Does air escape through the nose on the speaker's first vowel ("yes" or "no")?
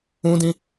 yes